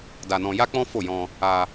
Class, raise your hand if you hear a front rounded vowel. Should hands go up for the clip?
no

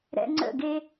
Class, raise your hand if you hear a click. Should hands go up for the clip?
yes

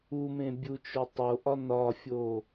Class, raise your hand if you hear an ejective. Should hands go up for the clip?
no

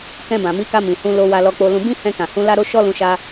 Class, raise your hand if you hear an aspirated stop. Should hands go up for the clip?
no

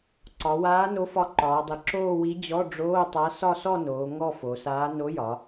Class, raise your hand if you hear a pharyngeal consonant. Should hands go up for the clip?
no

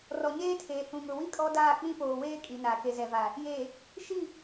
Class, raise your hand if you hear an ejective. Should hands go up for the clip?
yes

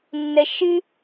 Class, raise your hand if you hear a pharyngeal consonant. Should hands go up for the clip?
no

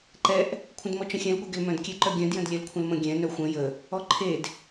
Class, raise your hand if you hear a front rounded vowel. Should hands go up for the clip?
yes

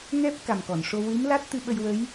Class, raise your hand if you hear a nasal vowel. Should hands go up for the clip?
no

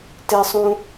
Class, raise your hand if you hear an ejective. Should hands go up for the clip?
no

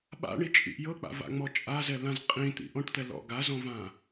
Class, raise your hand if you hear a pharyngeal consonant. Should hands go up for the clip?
no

